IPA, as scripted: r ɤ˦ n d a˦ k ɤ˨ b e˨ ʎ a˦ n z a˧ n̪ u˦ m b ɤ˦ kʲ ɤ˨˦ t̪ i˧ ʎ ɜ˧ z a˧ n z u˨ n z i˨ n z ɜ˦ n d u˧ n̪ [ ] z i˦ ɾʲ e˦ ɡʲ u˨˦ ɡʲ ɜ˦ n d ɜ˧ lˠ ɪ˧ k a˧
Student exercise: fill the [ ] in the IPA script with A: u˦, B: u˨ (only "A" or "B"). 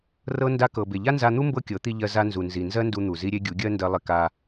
B